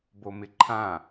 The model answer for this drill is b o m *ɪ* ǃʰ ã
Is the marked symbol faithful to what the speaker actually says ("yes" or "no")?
yes